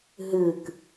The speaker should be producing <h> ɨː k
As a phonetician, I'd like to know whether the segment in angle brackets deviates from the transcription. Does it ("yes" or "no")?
yes